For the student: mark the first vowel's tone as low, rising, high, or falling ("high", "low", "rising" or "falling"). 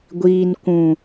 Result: low